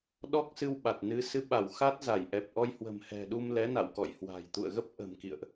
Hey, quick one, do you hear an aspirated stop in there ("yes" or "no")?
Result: no